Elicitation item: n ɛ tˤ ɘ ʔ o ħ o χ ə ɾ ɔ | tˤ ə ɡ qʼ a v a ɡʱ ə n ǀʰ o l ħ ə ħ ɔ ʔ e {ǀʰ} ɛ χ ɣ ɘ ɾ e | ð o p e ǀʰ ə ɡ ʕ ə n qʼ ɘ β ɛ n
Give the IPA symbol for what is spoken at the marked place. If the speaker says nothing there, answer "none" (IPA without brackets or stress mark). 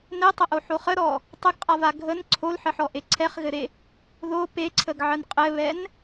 ǀʰ